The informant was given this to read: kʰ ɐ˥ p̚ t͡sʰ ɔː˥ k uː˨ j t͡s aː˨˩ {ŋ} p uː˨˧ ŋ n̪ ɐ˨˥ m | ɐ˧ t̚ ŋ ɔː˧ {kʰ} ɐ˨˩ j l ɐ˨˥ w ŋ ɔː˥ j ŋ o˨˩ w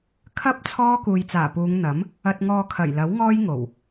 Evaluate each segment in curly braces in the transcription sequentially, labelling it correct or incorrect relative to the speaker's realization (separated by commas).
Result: incorrect, correct